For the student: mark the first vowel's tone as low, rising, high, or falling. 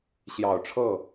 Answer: low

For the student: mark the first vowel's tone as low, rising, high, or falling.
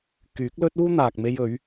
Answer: rising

